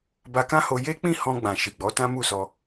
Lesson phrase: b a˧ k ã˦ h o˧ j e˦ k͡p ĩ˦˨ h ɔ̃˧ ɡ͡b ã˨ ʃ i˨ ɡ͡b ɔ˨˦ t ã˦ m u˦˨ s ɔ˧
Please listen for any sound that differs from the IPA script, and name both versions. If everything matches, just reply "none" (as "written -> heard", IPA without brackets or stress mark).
none